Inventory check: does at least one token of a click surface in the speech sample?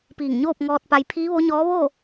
no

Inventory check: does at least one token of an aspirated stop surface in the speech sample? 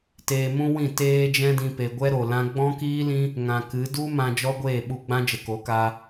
no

